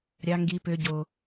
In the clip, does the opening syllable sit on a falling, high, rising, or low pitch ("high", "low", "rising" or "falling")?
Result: high